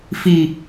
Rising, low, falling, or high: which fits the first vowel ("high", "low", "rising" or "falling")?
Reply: low